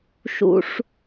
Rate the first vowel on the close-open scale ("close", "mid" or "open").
close